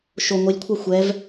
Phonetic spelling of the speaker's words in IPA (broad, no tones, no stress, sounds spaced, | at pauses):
ʃ o ŋʷ i lʲ kʷʰ ɑ xʷ ɛ v